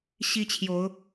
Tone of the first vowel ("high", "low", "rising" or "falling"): high